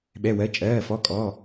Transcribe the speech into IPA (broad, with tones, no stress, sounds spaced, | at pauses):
ɓ ɛ˧˥˧ w ɜ˧˥˧ t͡ʃʼ ɜː˧˥˧ f ɔ˧˥˧ kʼ ɔ˧˥˧